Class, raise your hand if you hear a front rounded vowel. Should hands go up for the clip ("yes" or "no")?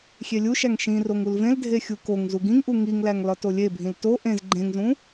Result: no